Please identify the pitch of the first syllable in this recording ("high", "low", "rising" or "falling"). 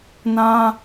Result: high